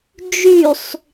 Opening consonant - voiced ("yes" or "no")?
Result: yes